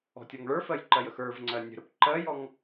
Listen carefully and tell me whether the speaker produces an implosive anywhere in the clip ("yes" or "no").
no